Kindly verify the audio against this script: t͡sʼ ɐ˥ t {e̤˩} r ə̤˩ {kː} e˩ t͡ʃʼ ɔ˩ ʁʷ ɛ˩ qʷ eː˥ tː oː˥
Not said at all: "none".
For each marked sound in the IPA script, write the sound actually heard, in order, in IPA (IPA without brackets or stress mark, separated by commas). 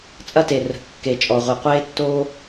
e˩, kː